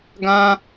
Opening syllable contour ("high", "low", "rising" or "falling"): high